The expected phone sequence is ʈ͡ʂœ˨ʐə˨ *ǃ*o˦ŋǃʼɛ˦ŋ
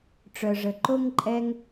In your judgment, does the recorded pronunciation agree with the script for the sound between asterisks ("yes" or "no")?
yes